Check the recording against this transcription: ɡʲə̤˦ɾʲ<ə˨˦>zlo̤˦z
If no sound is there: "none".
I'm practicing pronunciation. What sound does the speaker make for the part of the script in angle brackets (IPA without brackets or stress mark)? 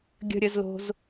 ə˨˦